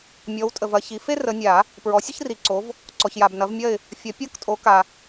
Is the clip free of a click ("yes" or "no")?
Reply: no